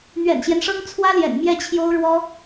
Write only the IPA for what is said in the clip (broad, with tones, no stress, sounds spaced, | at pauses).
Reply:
n̪ ɥ ɛ̰˨˩ n ɕ j ɛ˦ n ʂ ɤ˥ ŋ t͡sʰ w ä˥ l j ɛ̰˨˩ n m j ɛ˥˩ t͡ɕʰ j o˥ ʊ̯ ɻ w ɔ˥